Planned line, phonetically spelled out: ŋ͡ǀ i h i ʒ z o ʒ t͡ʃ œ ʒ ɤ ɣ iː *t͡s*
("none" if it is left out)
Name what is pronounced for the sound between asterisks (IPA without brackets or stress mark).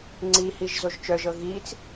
t͡s